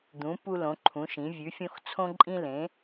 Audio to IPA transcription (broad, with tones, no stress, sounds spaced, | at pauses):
d̪ ũ˩˧ p u˧ l õ˩˧ ǃʰ ũ˩˧ ʃ ĩ˩˧ vʲ ʉ˩˧ fʲ õ˧ x t͡sʰ õ˧ ǃʼ ĩ˧ l ẽ˩˧